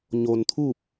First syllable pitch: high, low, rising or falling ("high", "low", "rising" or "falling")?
low